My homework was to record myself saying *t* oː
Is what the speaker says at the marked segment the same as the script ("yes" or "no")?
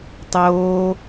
no